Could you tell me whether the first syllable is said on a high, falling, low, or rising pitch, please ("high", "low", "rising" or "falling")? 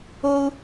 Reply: high